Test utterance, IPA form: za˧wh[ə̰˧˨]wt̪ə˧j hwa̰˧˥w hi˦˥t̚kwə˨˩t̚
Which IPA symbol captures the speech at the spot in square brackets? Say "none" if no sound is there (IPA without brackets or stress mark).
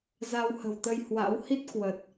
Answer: ə̤˨˩